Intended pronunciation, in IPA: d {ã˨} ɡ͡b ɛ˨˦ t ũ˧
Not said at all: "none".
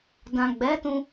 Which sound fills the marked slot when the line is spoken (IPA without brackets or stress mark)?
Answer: ã˨